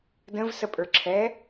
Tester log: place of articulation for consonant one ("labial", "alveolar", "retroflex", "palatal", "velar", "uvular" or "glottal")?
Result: alveolar